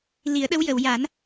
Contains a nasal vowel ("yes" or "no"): no